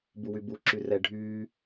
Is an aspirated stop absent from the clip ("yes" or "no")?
yes